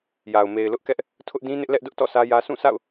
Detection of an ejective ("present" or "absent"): absent